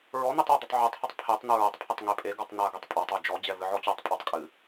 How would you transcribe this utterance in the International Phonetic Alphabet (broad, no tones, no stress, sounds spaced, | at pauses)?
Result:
ɹ ɔ n̪ i tˤ ɔ d̪ ɨ tˤ ʕ o tˤ h i tˤ pʰ e tˤ n̪ u ɹ ɐ tˤ pʰ ɨ tˤ ŋ e pʼ e ɡ ɔ tˤ n a ɡ ɛ tˤ pʼ a tˤ o d͡ʒ ɔ d͡ʑ ɛ v ɨ ʕ ɔ t͡ɕ ɔ tˤ pʼ ɔ tˤ kʼ ɨ